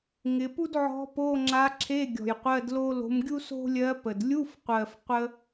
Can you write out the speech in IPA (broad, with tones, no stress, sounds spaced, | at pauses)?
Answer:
ŋ ɪ˧˥ p u˥ d ʕ ɔ̤˧˥ p o˧˥˧ ŋ͡ǁ a˧˥ ǁʰ e˧˥˧ ɡʲ ɔ̤˨˩ j qʷ ɜ˧˥˧ d l o˥ l o̤˧˥ m ɡʲ u˥ s o̤˥ lʲ ɜ˧˥ p ə˨˩ d lʲ u˧˥˧ f qʷ ɜ˨˩ f qʷ ə˥